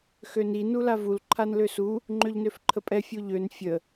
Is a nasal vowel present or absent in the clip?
absent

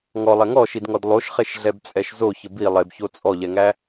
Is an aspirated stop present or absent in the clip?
absent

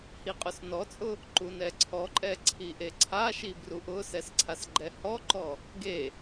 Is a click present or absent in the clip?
present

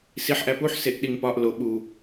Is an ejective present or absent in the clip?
absent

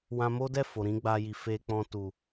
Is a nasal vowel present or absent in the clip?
present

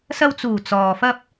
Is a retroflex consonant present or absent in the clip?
absent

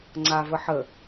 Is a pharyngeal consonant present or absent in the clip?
present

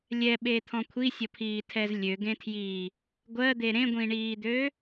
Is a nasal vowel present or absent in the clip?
present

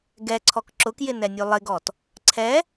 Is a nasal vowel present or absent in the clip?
absent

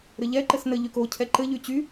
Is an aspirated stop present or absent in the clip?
present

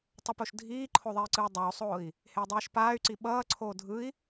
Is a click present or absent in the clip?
present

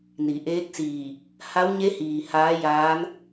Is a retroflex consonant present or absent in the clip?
absent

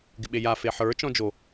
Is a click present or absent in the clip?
absent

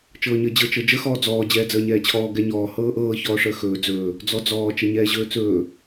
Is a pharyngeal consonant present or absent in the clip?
absent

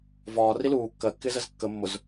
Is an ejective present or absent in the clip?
absent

